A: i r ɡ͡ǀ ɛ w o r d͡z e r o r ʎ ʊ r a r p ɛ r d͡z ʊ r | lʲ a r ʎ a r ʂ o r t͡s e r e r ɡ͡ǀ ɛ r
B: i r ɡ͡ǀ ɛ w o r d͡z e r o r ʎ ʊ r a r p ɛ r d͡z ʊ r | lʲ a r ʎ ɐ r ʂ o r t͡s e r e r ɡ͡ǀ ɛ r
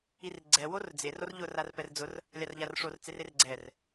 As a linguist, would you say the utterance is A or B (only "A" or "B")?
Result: A